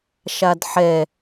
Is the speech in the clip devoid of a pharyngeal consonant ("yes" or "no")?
no